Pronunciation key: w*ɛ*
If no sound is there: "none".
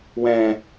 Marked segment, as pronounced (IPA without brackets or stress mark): ɛ̃